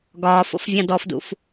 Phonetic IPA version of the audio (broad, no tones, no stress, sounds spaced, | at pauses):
ɡ ɒː f o̰ f vʲ ɑ̃ d ɔ f d ṵ f